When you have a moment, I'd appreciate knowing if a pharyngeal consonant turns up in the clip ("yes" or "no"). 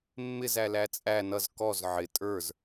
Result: yes